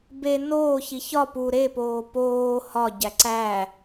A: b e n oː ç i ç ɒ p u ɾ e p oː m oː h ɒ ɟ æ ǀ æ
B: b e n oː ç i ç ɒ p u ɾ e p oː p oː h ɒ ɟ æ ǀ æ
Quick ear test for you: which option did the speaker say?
B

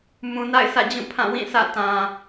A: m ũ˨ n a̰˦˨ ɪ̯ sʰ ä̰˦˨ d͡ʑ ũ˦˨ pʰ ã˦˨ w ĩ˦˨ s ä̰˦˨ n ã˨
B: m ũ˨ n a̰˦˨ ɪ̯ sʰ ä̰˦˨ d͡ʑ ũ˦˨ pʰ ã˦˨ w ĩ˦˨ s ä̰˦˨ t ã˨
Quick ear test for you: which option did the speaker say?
B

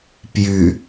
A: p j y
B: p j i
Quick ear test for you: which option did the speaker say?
A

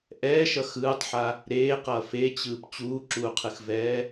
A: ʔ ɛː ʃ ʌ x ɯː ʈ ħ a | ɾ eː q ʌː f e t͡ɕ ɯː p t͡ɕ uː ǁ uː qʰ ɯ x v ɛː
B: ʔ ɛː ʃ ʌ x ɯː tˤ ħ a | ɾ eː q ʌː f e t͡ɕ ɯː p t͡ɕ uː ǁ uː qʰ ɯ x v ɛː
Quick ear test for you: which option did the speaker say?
B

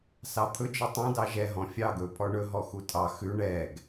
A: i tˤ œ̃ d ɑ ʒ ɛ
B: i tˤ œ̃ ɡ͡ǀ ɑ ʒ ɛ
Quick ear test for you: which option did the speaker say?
A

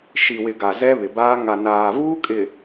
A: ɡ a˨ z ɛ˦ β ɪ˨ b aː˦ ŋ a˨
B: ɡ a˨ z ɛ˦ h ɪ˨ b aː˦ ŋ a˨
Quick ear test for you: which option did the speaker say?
A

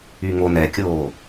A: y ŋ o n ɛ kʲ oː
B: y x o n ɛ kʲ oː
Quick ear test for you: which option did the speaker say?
A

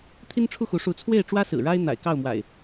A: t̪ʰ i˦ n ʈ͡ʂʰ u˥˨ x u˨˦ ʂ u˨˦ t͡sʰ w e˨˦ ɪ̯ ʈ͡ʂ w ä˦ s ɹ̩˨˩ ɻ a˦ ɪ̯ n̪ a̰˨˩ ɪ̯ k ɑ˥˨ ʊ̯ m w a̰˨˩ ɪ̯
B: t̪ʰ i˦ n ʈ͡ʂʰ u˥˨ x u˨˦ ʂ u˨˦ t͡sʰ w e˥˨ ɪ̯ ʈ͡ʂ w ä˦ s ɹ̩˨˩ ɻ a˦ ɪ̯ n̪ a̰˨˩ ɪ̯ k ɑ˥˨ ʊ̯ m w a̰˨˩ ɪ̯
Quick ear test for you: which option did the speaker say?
B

